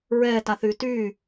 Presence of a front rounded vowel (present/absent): present